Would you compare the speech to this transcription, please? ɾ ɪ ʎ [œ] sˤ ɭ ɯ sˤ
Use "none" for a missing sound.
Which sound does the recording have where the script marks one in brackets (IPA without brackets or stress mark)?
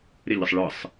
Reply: ə